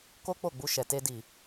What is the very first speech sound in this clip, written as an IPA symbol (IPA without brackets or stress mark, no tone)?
k